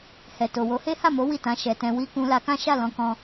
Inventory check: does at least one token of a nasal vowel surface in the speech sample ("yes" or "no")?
yes